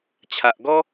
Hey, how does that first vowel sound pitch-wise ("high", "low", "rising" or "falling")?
low